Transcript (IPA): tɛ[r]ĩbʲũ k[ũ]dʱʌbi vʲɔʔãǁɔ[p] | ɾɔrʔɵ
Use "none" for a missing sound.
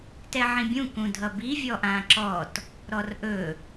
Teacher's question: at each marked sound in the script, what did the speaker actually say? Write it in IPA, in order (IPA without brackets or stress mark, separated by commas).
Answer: ʕ, ũ, t